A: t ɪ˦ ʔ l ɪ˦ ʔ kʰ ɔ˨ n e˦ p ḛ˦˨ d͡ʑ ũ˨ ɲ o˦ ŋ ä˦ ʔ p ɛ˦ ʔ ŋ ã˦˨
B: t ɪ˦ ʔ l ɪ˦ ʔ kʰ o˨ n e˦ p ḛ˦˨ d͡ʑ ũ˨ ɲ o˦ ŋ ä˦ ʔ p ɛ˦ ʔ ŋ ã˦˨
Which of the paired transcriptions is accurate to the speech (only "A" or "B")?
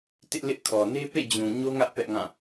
A